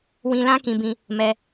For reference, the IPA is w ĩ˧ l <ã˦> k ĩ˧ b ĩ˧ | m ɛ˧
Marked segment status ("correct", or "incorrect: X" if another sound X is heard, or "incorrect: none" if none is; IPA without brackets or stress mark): correct